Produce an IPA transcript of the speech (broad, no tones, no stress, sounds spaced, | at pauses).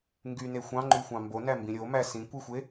ŋ ɡ y n e xʷ ɑ̃ ŋ͡ǃ y xʷ ɑ̃ m b o n æ m b ĩ ɾʲ o m æ s ĩ kʷ i xʷ e